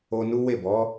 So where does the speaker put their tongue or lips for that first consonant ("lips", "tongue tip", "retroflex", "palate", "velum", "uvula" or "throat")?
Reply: tongue tip